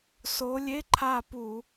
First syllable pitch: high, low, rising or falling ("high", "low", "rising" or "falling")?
rising